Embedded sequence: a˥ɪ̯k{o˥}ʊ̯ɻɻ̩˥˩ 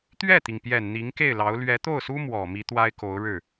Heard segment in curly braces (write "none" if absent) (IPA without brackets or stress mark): o˧˥